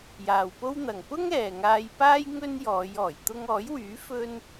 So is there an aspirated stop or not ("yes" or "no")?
no